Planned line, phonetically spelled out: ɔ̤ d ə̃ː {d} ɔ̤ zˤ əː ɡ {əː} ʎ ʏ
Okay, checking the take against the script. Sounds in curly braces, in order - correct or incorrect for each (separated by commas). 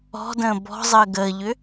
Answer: incorrect, correct